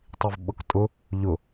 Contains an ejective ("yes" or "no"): yes